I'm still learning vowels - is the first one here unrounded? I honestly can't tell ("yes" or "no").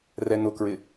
yes